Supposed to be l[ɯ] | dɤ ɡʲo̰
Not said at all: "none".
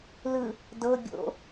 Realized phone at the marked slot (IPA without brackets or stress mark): ɯ